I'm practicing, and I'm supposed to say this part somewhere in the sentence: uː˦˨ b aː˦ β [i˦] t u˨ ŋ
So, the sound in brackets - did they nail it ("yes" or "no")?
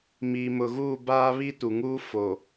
yes